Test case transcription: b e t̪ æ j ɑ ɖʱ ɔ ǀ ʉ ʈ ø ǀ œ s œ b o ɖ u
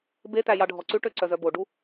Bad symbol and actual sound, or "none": s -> z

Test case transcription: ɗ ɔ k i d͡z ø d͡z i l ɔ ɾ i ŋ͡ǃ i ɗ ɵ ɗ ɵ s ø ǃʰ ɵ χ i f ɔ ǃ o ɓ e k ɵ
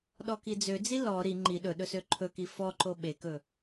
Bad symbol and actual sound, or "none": χ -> k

